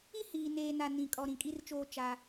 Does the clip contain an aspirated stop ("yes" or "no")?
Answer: no